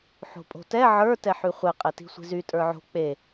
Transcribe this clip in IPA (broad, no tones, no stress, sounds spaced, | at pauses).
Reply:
ħ o̤ pʼ o̤ t ɛ ʕ ə˞ t ɛ ħ y χʷ e qʼ e t i̤ sʷ i̤ z y tʼ ə˞ ʕ o̤ k͡p e